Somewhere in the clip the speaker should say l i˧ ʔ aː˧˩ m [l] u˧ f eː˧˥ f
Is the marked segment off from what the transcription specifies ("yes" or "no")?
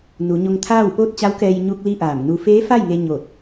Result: yes